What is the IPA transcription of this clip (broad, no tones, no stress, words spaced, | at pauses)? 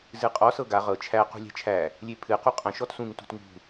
zɨqʼɔ sɤɡa ʁɤ t͡ʃʰæ qṳlʲæ̤t͡ʃʰæ | lʲepʰɨ quqʼə̃ ʃɔtsũŋ tṳtŋṳ